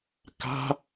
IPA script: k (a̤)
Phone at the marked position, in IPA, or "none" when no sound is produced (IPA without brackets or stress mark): a̤